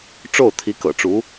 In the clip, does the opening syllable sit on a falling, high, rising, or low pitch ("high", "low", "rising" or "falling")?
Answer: falling